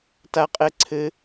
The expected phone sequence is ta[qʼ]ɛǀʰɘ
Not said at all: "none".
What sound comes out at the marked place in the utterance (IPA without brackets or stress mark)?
qʼ